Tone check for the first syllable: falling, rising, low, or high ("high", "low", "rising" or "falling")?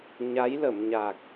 rising